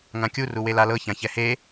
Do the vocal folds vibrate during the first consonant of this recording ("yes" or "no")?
yes